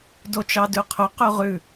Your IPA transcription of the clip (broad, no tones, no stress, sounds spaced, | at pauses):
d o t͡ʃ ɑ d ʉ qʰ ɵ q ʉ ʁ ʉ